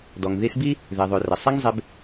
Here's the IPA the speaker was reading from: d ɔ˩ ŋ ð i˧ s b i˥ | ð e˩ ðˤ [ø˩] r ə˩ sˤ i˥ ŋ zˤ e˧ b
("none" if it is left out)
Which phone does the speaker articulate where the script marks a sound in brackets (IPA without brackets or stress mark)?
ø˩